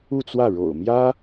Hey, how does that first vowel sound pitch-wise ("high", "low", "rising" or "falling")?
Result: falling